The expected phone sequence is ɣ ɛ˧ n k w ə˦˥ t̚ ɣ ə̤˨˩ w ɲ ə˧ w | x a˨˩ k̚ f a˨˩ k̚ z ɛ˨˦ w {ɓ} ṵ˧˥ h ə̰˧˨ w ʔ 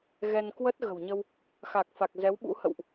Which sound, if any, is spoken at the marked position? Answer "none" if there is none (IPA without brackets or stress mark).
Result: ɓ